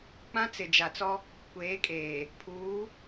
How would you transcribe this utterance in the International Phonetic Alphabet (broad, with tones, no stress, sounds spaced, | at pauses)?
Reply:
k͡p ã˦ t͡s ɪ˨ d͡ʒ a˨ t͡s ɔ˦ | kʷ eː˨˦ kʼ eː˨ | pʰ uː˨˦